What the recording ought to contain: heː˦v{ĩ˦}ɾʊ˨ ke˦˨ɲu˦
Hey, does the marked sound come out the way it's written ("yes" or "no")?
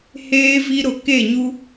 no